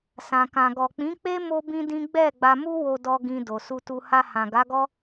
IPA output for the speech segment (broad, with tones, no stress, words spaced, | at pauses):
sã˨kã˨ɡɔ˨ k͡pĩ˨˦k͡pe˦ mo˦bĩ˦dĩ˦ ɡ͡bɛ˦˨ ɡ͡ba˧mu˦wo˧dɔ˧ ɡĩ˧ do˨su˧tu˧ ha˧hã˨ɡa˨˦ɡɔ˦